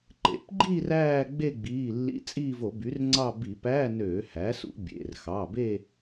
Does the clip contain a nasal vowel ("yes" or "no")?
no